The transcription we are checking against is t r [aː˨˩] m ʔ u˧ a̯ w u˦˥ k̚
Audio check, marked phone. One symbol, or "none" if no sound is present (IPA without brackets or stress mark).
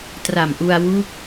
a˨˩